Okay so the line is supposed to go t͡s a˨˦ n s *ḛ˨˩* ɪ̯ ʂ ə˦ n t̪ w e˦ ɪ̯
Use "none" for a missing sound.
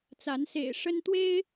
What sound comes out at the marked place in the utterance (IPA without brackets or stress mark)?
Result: ḛ˨˩